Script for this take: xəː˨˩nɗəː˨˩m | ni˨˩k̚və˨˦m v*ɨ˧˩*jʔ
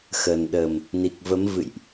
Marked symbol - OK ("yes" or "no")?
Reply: no